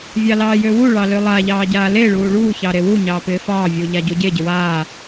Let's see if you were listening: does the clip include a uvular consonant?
no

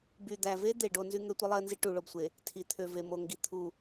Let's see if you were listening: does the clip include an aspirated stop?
yes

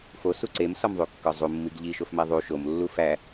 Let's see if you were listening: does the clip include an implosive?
no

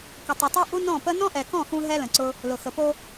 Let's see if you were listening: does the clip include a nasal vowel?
yes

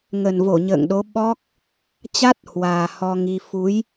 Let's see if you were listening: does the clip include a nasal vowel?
no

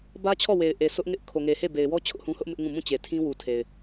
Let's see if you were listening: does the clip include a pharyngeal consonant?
no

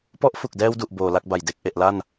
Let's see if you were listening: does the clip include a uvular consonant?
no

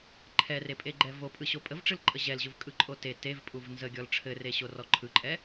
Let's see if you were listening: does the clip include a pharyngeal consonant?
no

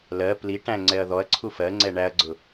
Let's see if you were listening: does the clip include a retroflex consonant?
yes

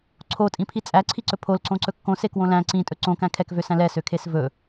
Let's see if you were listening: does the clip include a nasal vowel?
yes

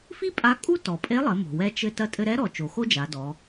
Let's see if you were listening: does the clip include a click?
no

